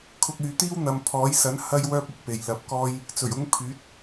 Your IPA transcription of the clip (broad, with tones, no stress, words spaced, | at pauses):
kʰʊ˧k̚yː˨t̪iː˥w n̪ɐ˨mpʰɔː˨˥jsɐ˨˥n hɐ˥jwœː˥p̚ ʊ˨˥k̚pe˨jlɐ˧p̚kɔː˥j | t͡sɵ˨˩ɥʊ˥ŋ pʰyː˨˥t̚